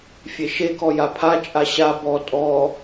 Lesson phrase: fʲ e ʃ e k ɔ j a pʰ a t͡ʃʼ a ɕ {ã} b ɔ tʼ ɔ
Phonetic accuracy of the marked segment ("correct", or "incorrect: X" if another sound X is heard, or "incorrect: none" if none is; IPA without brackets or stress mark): incorrect: a